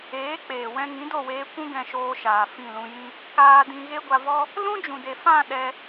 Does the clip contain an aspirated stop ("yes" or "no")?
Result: no